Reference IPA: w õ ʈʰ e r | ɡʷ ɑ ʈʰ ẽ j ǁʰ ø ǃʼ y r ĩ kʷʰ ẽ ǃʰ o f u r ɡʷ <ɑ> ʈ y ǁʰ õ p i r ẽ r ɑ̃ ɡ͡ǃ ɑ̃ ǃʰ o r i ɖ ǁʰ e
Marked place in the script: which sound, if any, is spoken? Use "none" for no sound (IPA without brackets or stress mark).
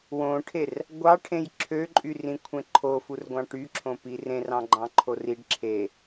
ɑ̃